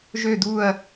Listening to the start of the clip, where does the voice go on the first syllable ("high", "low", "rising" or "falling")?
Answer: low